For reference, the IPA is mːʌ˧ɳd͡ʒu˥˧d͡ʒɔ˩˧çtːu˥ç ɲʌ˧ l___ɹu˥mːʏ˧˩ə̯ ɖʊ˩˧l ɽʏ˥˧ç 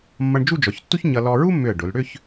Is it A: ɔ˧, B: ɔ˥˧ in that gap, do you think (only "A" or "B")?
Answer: A